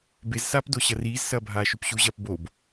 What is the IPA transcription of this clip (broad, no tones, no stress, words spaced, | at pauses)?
bezsaːpdo ɕɐriːzsɐːbʱaː ʃʉpɕuʑɐːp bob